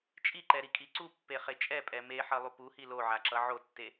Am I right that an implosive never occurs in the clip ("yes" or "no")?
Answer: yes